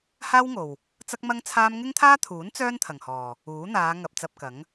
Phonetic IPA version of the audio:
h aː˥ w ŋ o˨ w | t͡s ɐ˥ k̚ m ɐ˥ ŋ t͡sʰ aː˥ m ŋ ɪ˥ ŋ t̪ʰ aː˥ t̪ʰ uː˨˥ n t͡s œː˥ n t̪ʰ ɐ˨ ŋ h ɔː˨ | uː˨˥ n̪ aː˨˧ ŋ ɐ˧ p̚ t͡s ɐ˧ p̚ k ɐ˨˥ ŋ

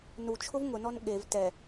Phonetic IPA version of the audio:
n u t͡ʃʰ ʊ v ŋ ʊ n ɔ n ɠ e v t ɛ

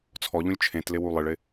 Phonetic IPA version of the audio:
t͡sʰ ɔ ʎ ũ lʲ t͡ʃʰ ẽ t l ɪ w u lˠ ɪ ɭ ɪ

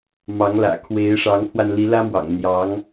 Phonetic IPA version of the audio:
m ɑ˧˥ ŋ l ä̰˨˩ kʰ w e˧˥ ɪ̯ ʂ ɑ˧˥ ŋ pʰ w a˧ n l i˧˥ l ä˥ m w ɑ̰˨˩ ŋ n̪ j ɑ˧˥ ŋ

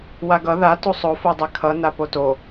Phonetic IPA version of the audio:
w a ɡ ʌ ð a t u sˤ o f o dˤ ɛ kʰ ʌ n a p o t o

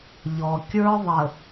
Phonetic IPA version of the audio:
ʎ ɔ˨ kʲ ə˞˦ ðˤ ə˨

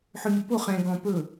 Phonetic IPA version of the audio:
ħ ø mʲ ʊ p o χ ɛ̃ ɡ ɔ̃ p ɵ

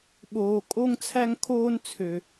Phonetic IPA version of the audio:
ɓ oː˨ kʼ o˦ ŋ t͡sʰ æ˦ ŋ kʰ oː˦ n t͡sʰ ø˨

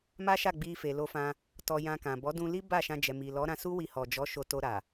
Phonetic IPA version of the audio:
m a˦ ʃ a˦˨ ɡ͡b i˧ f e˨ l o˧ f ã˧ | t ɔ˧ j ã˧ k ã˨ b ɔ˨˦ d ũ˧ l i˦ b a˦˨ ʃ ã˧ d͡ʒ ɛ˨ m i˨ l ɔ˨˦ ɾ ã˧ s u˦ w i˧ h ɔ˨ d͡ʒ ɔ˨˦ ʃ o˧ t o˧ ɾ a˨

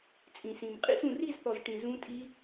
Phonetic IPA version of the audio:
t͡sʼ ĩ˨ s ĩ˨ m qʼ ḭ˥˧ s ũ˨ r i˥˧ z θ ɔ˨ z ʈ ĩ˨ z ũ˦˥ tʼ i˦˥

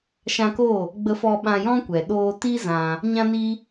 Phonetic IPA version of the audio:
ʃ ã˧ k o˦˨ | ɡ͡b ə˧ f ɔ˧ ɓ ã˧ j ɔ̃˦ kʷ ɛ˨ ɗ oː˧ t i˦ z ã˧ | ɲ ã˦ n i˦

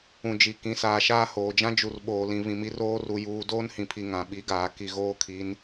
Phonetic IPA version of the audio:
ũ˨ d͡ʒ i˨ k ĩ˨˦ s aː˨ ʃ aː˦ h oː˨ d͡ʒ ã˦ d͡ʒ u˨ r ɓ oː˨ l ĩ˨ β ĩ˨ m i˨˦ r oː˦ r u˨ j uː˨ d oː˦ n h ĩ˨ pʰ i˨ ŋ ã˨ ɓ i˨˦ ɡ aː˨ k i˨ ɣ oː˦ kʰ i˨˦ n

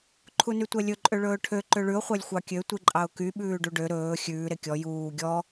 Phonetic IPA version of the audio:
ǃʰ u n y tʷ ɛ lʲ ɵ ǃʼ ø ɭ ɵː ʈʰ ø ǃ ø ɭ ʉ ʊ̯ χʷ æ lʲ xʷ ɑ kʲ ø tʷ i ǃʼ ɑ ʊ̯ k y ɓ ʉː ɖ u ɖ ø ɾ ɵː xʲ ʉː ɾ e kʲ ɔ j uː ɡʲ ɔ

